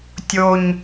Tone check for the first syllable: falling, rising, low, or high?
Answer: low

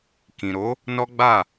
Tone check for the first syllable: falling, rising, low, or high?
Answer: low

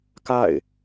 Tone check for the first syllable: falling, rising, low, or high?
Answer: falling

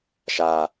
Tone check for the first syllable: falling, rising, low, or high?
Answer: low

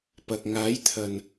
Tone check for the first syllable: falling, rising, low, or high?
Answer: low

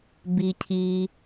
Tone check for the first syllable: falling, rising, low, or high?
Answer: low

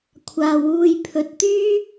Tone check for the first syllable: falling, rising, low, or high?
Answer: low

